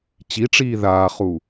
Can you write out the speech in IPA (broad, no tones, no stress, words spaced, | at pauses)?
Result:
t͡ɕiʈ͡ʂiː ðaːχu